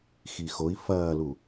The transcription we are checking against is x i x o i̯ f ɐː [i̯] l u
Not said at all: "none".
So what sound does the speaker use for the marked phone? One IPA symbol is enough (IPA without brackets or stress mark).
none